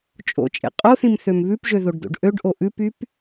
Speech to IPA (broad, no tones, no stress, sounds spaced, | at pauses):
t͡ʃʼ o̰ t͡ʃʼ ḛ qʼ o θ ĩ m θ ø m β ʉ p ʒ ø ð o ɖ d̪ o̰ ɖ ʔ ø ɖ ʔ o ʔ ʉ p y p